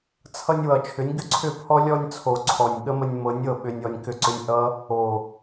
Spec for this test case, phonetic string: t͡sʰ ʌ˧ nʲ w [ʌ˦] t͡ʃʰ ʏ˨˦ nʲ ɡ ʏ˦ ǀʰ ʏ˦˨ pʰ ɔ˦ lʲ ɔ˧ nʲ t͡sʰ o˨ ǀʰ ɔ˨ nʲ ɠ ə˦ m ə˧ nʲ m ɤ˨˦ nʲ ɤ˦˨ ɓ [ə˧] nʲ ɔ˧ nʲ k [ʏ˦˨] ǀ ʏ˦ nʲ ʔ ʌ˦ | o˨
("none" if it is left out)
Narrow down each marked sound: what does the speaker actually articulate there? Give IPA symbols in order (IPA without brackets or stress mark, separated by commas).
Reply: ʌ˨, ʏ˧, ʏ˦˨